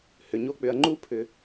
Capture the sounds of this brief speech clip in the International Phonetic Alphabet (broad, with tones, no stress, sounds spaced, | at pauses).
h ʏ˩ ɲ o˥ k͡p ʏ˨ ɐ̯ ŋ͡ǃ u˥ pʰ ʏ˩